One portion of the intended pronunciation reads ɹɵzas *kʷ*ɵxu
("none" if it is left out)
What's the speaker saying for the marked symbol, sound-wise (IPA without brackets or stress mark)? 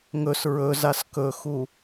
k